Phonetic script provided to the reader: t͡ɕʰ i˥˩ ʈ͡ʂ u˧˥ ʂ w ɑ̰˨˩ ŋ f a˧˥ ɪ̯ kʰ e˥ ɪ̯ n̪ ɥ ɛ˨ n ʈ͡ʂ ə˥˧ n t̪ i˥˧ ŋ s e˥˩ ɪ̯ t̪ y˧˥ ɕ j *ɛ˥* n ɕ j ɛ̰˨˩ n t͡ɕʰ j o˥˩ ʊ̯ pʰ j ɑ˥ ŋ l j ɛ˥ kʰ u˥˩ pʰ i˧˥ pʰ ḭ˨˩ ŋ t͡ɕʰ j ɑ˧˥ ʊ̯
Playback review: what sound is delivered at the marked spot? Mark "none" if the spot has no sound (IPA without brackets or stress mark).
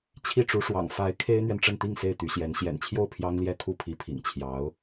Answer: ɛ˧˥